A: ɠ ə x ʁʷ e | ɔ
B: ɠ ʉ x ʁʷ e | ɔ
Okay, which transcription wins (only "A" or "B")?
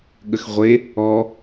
A